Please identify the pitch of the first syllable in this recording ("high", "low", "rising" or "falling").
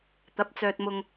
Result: rising